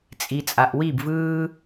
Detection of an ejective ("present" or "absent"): present